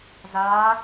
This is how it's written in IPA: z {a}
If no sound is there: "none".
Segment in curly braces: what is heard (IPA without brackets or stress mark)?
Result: a